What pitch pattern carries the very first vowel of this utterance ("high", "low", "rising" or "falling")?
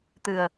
low